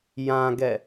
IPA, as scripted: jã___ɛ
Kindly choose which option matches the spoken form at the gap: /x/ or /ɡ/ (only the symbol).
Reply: ɡ